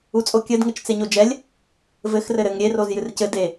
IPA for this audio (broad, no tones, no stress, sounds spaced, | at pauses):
u t͡sʼ o kʲ ɘ d ŋ ɘ t͡ʃ t͡s e ɲ o d͡ʒ ɛ lʲ | v ɘ x r ɘ ɾ ɘ ŋ ɾʲ e r o z j ɨ r c ɘ d e